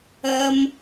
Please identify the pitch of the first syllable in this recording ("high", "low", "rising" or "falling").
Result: high